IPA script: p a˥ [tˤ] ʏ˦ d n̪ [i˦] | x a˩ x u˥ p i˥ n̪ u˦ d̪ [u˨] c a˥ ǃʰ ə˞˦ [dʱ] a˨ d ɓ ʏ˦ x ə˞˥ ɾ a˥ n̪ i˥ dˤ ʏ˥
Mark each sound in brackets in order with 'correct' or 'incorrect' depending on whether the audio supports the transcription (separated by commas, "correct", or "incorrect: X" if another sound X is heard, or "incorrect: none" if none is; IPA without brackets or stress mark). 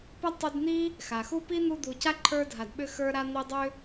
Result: correct, incorrect: i˥, correct, correct